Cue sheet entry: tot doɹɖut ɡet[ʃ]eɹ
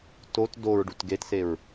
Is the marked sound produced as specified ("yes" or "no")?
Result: no